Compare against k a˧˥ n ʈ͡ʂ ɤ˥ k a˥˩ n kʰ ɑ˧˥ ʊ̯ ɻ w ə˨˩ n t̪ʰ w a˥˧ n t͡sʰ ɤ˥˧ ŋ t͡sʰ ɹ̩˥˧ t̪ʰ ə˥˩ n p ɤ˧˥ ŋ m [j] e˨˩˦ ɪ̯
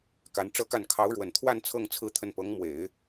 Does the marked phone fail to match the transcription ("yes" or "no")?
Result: yes